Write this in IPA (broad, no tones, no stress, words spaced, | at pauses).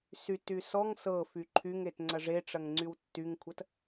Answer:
syty sɔŋ sɤfy ǃʰyŋet ŋ͡ǀɐʐeʈ͡ʂɐŋ ŋ͡ǀywtːyŋkʷʰɐt